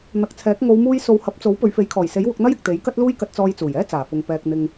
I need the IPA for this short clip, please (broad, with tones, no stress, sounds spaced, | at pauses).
n̪ ɐ˨˥ k̚ t͡sʰ ɛː˨˥ k̚ ŋ o˨˧ w m uː˧ j s o˨˧ w h ɐ˨˥ p̚ t͡s o˨˥ w p ɵ˨˧ ɥ f e˨˥ j kʰ ɔː˨˩ j s e˨˥ j w ʊ˨˥ k̚ n̪ ɐ˥ j ɪ˨ k̚ t̪ e˨˥ j k ɐ˥ t̚ l uː˥ j k ɐ˧ t̚ t͡s ɔː˧ j t͡s uː˨˩ j ɛː˥ t͡s aː˨˩ f ʊ˨ ŋ p ɛː˧ k̚ n̪ ɪ˧ ŋ